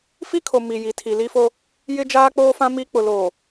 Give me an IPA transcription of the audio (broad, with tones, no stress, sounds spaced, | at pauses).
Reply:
f i˦ kʰ o˨ m i˨ j i˨ tʰ i˨ l i˦ f o˦ | j ɪ˦ d͡ʒ aː˦ k͡p oː˦ f ã˦ m i˦ k͡p ʊ˨ l oː˨